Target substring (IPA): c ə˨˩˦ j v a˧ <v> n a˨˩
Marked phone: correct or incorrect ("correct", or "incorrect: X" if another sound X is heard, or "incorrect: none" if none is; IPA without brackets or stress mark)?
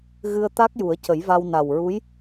incorrect: w